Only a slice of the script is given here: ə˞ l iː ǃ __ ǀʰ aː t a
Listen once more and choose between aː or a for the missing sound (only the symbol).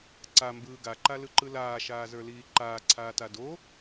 aː